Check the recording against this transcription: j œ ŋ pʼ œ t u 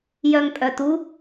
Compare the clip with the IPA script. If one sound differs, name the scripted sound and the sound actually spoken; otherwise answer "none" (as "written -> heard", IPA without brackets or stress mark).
none